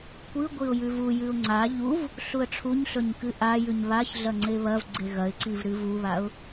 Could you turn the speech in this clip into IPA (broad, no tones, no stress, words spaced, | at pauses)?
kʷɨ ɡʷiʊ̯jʉvujɨʊ̯ ŋ͡ǀa ʎuv | ɬuə̯ʈ͡ʂʰuɲɬɵɲ kɨʔajʉɲ βaçɮɐ ŋ͡ǀeβɐvɡ͡ǀe ɣɐɪ̯ǀiv ɾɨvuβaʊ̯